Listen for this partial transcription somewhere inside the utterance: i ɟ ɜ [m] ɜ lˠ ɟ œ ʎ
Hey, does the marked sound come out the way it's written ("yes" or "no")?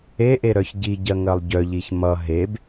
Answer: no